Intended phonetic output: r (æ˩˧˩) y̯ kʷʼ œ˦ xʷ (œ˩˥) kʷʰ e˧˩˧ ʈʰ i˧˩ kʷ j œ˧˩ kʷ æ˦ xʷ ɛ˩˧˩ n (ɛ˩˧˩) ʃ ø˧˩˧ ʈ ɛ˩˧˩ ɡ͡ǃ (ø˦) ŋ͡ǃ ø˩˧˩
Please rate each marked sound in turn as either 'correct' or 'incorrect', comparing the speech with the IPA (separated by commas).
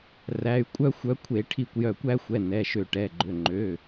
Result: correct, correct, correct, incorrect